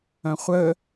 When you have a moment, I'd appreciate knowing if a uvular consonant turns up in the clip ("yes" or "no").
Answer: yes